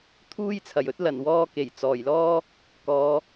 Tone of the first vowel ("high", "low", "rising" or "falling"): high